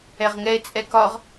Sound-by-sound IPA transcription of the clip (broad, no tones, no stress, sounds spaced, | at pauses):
ɛ ʁ ŋ ɛ e̯ t͡sʼ ɛ k ɒ ʁ